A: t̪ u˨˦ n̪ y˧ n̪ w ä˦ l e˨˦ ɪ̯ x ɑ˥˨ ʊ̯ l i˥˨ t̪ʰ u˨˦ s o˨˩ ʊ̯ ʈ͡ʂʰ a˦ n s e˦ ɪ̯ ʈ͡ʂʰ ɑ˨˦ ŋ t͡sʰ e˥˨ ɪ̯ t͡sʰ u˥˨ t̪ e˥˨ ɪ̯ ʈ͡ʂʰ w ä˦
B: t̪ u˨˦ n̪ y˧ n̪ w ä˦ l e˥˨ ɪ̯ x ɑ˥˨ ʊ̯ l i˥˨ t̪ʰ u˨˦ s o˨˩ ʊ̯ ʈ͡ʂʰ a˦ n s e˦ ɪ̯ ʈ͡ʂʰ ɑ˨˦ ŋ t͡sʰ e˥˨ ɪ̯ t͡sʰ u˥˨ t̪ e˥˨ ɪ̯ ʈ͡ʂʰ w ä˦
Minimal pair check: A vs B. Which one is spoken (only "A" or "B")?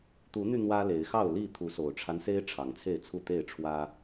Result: A